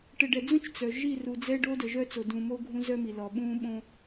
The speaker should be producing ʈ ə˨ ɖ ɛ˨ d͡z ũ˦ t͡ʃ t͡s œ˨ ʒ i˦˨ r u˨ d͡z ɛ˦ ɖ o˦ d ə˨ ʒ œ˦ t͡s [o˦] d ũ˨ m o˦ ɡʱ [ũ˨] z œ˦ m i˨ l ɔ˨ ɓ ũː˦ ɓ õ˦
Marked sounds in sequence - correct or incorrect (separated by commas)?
incorrect, incorrect